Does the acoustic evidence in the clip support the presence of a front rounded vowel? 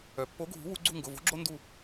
yes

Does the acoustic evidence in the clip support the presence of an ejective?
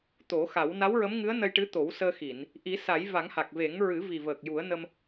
no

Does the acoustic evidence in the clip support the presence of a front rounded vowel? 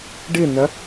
no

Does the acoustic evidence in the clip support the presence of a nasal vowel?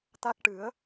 no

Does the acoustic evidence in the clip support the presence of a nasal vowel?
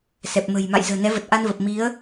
no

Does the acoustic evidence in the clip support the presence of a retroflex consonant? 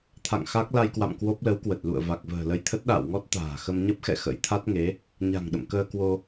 no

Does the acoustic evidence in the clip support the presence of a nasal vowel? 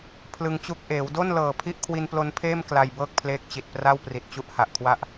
no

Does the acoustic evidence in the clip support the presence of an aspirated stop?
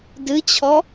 yes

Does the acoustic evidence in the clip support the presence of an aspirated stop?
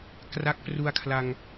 yes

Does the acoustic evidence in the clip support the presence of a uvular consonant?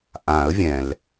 no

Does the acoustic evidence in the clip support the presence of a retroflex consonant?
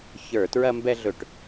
yes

